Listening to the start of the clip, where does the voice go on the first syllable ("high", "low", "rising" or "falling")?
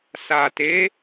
low